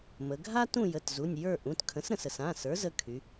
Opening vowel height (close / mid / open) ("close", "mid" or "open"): mid